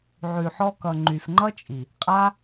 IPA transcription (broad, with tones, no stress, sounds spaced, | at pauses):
ʕ ʉ˨ ħ ɔ˧ k ʌ˨ ŋ͡ǃ y˨ f ŋ͡ǃ ʌ˦ t͡ʃʼ i˨ | qʼ a˦